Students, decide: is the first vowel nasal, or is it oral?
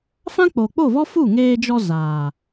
nasal